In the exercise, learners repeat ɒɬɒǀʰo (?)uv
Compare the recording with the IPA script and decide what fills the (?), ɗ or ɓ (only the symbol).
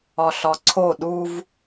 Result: ɗ